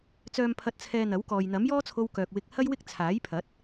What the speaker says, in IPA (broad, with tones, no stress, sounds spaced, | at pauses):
t͡s œː˨ m pʰ ɐ˨ t̚ t͡sʰ ɛː˨ n̪ ɐ˨˥ w k ɔː˨ j n̪ ɐ˨˥ m j ɔː˥ t͡sʰ o˧ w k œː˨ k̚ w ɪ˧ k̚ h ɐ˥ j w ɪ˥ k̚ t͡sʰ aː˨˥ j pʰ ɐ˨˥ t̚